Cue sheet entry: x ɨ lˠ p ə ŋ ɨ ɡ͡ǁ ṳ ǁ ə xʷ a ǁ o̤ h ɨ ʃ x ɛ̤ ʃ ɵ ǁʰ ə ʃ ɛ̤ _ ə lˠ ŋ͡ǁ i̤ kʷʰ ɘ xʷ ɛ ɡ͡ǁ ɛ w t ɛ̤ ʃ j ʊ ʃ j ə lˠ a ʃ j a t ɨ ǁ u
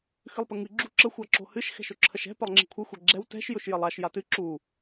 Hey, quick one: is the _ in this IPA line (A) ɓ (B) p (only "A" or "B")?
B